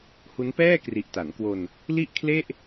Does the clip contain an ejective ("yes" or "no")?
no